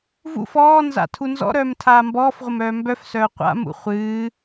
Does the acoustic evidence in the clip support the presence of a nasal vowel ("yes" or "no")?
no